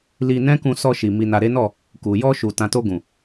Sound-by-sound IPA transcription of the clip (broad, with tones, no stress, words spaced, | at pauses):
li˧ nɛ̃˦kũ˧ sɔ˧ʃi˨ mi˨na˨ɾe˨˦nɔ˦˨ | ku˨jɔ˧ʃu˨ tã˨to˧ɡũ˨